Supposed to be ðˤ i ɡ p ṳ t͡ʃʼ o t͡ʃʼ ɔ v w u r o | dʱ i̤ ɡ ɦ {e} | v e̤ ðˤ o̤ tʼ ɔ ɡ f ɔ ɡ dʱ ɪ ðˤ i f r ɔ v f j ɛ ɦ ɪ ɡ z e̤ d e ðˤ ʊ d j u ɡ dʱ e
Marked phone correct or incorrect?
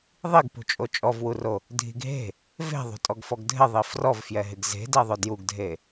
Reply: incorrect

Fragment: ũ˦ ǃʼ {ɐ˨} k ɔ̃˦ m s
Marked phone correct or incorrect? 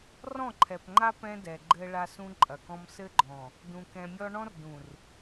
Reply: correct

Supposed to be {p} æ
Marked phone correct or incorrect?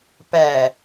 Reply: correct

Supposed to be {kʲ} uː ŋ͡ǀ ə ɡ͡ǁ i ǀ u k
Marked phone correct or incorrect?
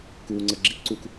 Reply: incorrect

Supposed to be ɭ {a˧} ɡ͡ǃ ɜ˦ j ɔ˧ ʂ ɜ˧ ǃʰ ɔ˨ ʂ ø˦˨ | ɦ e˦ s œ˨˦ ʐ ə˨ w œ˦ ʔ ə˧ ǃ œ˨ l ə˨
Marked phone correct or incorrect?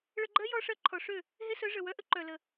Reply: incorrect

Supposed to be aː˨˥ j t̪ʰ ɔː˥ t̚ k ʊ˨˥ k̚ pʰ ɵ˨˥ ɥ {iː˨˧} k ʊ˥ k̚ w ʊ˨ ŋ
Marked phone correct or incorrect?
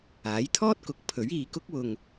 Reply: correct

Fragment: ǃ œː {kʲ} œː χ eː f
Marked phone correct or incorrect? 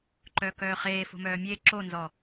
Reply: incorrect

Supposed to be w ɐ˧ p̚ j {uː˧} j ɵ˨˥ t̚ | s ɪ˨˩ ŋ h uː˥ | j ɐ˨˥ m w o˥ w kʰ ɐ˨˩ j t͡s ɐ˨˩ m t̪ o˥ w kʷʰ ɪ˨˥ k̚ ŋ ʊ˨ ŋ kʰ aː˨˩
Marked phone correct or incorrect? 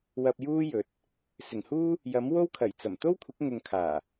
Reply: incorrect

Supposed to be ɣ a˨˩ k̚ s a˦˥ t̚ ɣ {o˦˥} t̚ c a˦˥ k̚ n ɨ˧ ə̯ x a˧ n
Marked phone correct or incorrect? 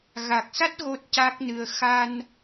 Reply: correct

